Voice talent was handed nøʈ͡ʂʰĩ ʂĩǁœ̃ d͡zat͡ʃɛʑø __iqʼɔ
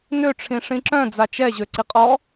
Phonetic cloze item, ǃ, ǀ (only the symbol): ǀ